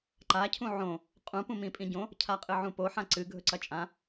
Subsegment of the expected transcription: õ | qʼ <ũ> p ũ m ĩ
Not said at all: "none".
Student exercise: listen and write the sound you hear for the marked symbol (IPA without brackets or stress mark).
ũ